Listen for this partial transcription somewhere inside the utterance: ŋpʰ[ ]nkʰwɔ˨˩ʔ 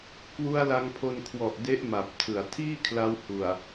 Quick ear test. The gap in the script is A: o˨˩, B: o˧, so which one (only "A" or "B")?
B